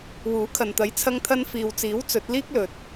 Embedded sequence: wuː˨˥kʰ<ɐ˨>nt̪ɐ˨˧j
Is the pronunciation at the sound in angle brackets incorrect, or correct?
correct